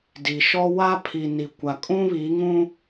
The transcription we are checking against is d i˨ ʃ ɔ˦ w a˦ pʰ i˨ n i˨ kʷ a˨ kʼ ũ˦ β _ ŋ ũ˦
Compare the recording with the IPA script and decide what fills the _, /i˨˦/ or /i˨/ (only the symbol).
i˨˦